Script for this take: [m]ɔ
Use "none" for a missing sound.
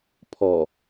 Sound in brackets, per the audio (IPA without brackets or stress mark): pʰ